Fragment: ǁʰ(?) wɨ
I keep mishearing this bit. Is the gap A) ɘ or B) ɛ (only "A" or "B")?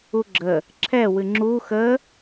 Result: B